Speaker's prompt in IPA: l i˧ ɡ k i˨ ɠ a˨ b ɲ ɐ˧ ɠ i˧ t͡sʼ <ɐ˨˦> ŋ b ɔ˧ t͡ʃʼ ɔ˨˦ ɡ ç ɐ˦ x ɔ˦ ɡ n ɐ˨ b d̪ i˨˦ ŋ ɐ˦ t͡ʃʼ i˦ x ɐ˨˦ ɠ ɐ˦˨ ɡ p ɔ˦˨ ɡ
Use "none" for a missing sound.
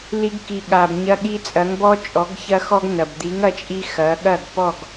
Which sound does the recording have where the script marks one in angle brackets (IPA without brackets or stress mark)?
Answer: ɐ˨˦